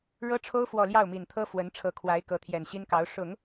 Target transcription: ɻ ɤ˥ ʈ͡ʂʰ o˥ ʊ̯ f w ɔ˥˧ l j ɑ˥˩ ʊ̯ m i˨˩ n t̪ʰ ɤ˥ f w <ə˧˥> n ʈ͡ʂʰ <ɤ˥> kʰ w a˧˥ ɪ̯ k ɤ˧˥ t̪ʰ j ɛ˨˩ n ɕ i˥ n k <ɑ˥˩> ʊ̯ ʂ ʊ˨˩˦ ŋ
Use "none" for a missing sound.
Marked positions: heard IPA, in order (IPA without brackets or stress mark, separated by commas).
ə˧˥, ɤ˧˥, ɑ˧˥